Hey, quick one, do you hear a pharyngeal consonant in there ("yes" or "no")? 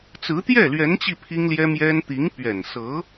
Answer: no